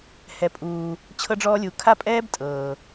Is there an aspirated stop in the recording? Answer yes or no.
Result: yes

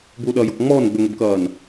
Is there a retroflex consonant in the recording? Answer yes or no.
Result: no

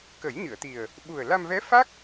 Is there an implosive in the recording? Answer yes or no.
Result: yes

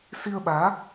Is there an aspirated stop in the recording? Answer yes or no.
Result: no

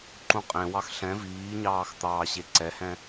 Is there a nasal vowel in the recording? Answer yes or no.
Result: yes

